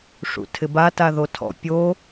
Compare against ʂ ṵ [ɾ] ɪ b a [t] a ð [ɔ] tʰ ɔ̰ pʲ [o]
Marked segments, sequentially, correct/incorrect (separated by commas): incorrect, correct, incorrect, correct